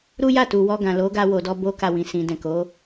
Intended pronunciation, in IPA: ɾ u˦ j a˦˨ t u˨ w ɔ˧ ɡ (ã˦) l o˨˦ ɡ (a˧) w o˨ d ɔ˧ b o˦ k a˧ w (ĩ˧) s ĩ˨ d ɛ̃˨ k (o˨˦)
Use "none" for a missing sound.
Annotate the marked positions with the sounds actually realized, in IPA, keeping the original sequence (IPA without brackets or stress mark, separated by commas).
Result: ã˨, a˧, ĩ˨, o˨˦